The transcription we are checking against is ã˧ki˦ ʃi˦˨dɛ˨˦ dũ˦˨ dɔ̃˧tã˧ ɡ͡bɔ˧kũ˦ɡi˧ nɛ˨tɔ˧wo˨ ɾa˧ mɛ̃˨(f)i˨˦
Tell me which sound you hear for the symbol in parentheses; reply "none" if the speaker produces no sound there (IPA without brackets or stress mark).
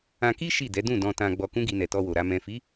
f